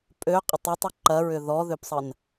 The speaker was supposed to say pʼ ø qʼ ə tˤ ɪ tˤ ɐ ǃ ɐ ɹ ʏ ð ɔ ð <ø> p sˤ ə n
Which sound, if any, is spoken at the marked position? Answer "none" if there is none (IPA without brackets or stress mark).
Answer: ø